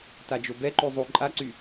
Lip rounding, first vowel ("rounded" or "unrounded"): unrounded